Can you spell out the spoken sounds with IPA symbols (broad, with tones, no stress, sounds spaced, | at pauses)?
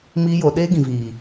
m iː˦ j o˧ ɗ eː˦ ɡ ĩ˨ v iː˨